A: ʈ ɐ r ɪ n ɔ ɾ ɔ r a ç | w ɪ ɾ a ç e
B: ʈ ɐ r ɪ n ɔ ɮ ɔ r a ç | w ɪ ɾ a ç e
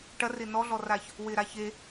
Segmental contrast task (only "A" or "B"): B